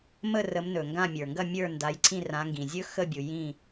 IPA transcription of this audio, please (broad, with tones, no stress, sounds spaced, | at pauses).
m ə˦˨ r ə˨˦ m n ɵ˩ ŋ ɡ ã˦˨ mʲ ə˞˩ ŋ ɡ ɐ˦˨ mʲ ə˞˦˨ n d a˨˦ j ǀʰ ĩ˦˨ r ã˨˦ ŋ ɡ ĩ˩ zʲ ɵ˦ x ə˦˨ bʲ u˩ j ĩ˦˨